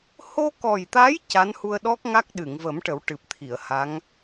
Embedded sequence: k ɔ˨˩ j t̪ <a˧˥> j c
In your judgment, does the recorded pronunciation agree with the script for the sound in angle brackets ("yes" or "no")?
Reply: yes